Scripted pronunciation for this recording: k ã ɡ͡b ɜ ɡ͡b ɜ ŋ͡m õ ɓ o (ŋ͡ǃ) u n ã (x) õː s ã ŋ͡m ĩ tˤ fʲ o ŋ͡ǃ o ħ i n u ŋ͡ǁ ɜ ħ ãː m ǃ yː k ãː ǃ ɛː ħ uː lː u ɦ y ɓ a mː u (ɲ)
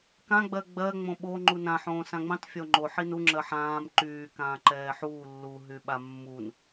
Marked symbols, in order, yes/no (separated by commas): yes, no, no